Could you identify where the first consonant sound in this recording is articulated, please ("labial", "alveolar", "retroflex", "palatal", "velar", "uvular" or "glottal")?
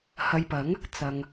glottal